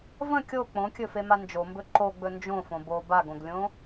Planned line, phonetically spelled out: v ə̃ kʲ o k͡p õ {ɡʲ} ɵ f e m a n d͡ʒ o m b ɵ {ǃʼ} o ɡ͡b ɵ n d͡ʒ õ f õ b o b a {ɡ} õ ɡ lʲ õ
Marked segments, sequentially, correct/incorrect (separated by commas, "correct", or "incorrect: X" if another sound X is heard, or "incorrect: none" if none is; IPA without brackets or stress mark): incorrect: kʲ, incorrect: ǃ, correct